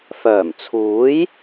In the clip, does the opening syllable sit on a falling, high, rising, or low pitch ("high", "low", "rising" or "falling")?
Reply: low